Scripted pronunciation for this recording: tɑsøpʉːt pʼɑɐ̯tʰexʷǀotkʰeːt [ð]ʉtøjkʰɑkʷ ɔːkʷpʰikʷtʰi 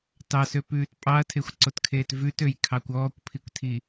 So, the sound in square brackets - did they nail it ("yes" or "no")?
no